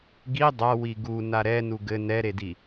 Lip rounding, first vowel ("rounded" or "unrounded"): unrounded